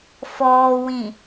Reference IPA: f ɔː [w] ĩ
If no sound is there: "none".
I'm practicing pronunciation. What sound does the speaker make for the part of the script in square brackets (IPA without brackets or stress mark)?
w